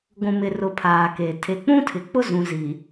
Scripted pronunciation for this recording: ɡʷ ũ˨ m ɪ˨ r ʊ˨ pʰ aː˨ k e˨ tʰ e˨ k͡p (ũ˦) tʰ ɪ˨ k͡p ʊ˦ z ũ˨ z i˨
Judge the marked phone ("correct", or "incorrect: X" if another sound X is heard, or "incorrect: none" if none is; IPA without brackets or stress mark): correct